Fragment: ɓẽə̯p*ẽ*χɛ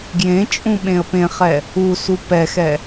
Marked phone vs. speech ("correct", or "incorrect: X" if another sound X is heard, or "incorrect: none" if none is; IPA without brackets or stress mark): correct